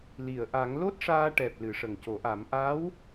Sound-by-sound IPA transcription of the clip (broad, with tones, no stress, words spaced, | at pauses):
li˨˩˨ə̯ʔa˨˩˦ŋ lo˦˥t̚ʂaː˧ʈɛ˨˩p̚ lɨ˨˩˦ʂə˨˩ŋco˨˩˦ʔa˨˩˦m ʔa˧˥w